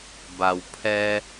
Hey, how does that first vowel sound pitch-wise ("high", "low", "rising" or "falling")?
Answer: low